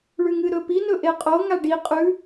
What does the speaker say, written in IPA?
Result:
ɭʉŋɨɾɵpi nɵʔeqʼo ŋaɖi qʼʉ

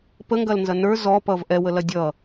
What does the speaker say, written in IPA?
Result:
pəŋɡɐlnzɐ nə˞ zɔpʌv ʔɛwəlɐ dʲʌ

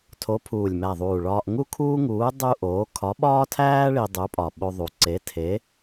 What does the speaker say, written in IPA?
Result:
tʰo˨˥pʰuː˨˩lʲmæ˨˩ðˤuː˨˩ ɭɒː˧ʔŋu˥kʰuː˥ŋuː˨˥ dˤu˥ʔoː˨˥ kʰɒ˨˥ɓɒː˥tʰæː˥ ɭi˧dˤu˨˥pʼɒ˨˩ ɓo˧ðˤu˨˩ ǀe˨˥ tʰe˨˥

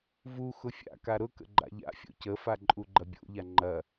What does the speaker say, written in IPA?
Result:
vu xʊfʲa̰ka ɾʊkə̰ ɡ͡ǃa̰ʎa̰fʲo̰ cəfa ǃʼuɡ͡ǃɐbʲo̰ʎa ŋ͡ǃɐ

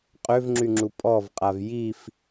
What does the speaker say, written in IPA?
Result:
qʼøvŋ͡ǁyŋ͡ǁu pʼɔvqʼav jif

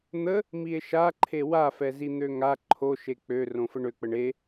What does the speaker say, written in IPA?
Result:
n̪ə | mie̯ʃaǃʰe wafɛzi n̪øŋa ǃʰo ʃek͡pø rõfəɳøk͡pəɳ e

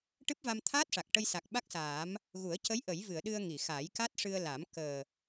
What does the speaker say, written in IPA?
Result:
ʈɨ˦˥p̚va˧mt̪ʰaː˦˥t̚ʂa˨˩k̚ ʈə˧jsa˨˩k̚ ɓa˦˥k̚saː˨˩˦m | ɣu˨˩˦ə̯ cə˧˥j ʔə˨˩˦jvɨ˨˩˨ə̯ ɗɨ˧ə̯ŋi˨˩˨xa˨˩˦j ka˦˥t̚ʂɨ˧ə̯la˨˩˦m kəː˨˩

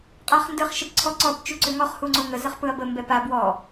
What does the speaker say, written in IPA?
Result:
qʼaχndɯχ ʃəpǀʰɔ ǀɔp t͡ʃuǀʏŋɔχ huŋ͡ǀoŋə zəχpɯɐ̯bə mbɛpa bwɔ

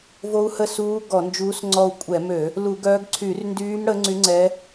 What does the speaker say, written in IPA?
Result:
vo˧˥u̯hə˦˨suː˧˥ ɡɔ˧˩˧nd͡ʒuː˧˥sŋ͡ǀɔ˦˨u̯ kʷʼɛ˧˩˧mø˧˩˧ | lu˧˩˧ɡœː˧˥ɡ ǀʰy˧˩˧rndyː˧˥m ɽə˧˥ŋ͡ǀy˧˥ ŋ͡ǀɛ˧˥

